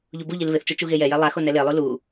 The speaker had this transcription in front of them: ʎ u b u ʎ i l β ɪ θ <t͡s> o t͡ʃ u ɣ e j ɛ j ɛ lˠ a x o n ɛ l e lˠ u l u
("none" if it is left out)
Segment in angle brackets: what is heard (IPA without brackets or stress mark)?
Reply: t͡ʃ